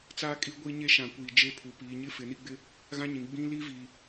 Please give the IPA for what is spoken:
t͡saː˦kʼi˦ ɡʷi˦ɲe˦ʃã˨ kʷiː˨d͡ʒe˦pʰu˨ piː˨ɲɪ˦ fɪ˨ni˦ɡ͡bɪ˦ | ɣã˦ɲĩ˨ ɡ͡bĩ˦ li˦vi˨

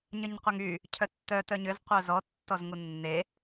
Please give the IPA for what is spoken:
ɲəɲqʷəŋy | cʰœtːœ tœɲʏz qʷœzɔ tːɔzŋunːe

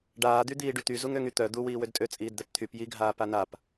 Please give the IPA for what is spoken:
ɖaːd̪yd̪iː ɖyt̪y zuŋøŋyt̪œ d̪u wiːwødtʼø t͡sʼiːdd̪ɛpt̪ʰyp jiɡʱaː panap

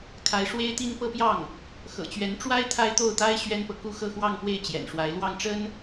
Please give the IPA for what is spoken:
kʰa˥ɪ̯ ʂwe˥ɪ̯t̪i˥n pɤ˥˧pjɑ˥˩ŋ | xɤ̰˨˩t͡ɕɥɛ˧˥nʈ͡ʂwa˥ɪ̯ t̪ʰa˥ɪ̯t̪o˥˩ʊ̯t̪a˥ɪ̯ ɕɥɛ˥npɤ˨ ku˥˧xɤ˥˧xwɑ˥˧ŋ pwe˥˩ɪ̯ t͡ɕjɛ̰˨˩nʂwa˧˥ɪ̯ lwɑ˥˩ŋʈ͡ʂə˥n

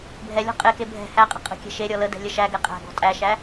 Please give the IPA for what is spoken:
bʱɛlʲɔ̤ qʼeke bʱɛ̤ hæqʼə̤ qʼə̤kʲɛ̤ ʃe ɾʲɔlədɛ̤ lʲəʃæɡɛ qʼæ̤ɡɔ̤ tʼæʃæ

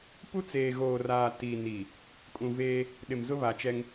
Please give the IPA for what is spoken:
pu˦t͡seː˨ɣoː˨raː˨ ti˨ni˨ | kʼũ˨veː˦ | ɗɪ˨mzʊ˦βa˨ t͡ʃɛ˦ŋ

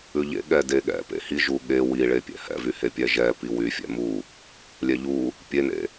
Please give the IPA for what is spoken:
ʉʎḛ ɠɛdeɠɛ̰ pḛhiʒu ɠe wiɭepʲɛ̰ hɛ̰vyhe pʲɛʒɛ piwyfʲɛ̰ mu | lʲɛʎu | pʲenḛ

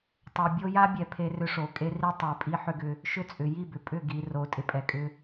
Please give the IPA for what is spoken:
tˤo˨bʲo˦ ja˦bʲɛ˨ pʰe˦rʏ˦ ʂo˨kʼe˦ri˦ tˤe˨pʼi˦ħʏ˦ɡʏ˦ | ʃʏ˦t͡sʼʏ˨ ji˦˨bʏ˨pʼʏ˦˨ ɡi˨ ro˨˦tʼɪ˨pʼɛ˨kʼʏ˦

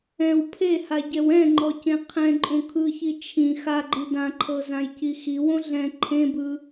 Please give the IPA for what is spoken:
ɛ̃w pʰehaɟɛw ɛ̃ŋ͡ǃɔcẽ qʰɛ̃ǃʼõ kʰɯçi t͡ʃʰĩ xaɡ͡ǃi dãǃʰɤzãjci xiwõ ɮɛ̃ ǃʰẽbɯ

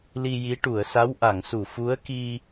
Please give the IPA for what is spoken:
li˧ji˧˥ ʈu˨˩˨ə̯sa˧˥wʔa˨˩˨ŋsu˨˩˨ fu˧˥ə̯ki˧

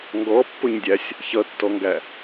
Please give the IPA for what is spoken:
ŋɡɔpːʊɲdʲæsʲ | çʌtːɔŋɡæ

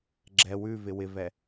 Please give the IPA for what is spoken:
ɡ͡ǁɛ wʉvɪ wɪvɛ

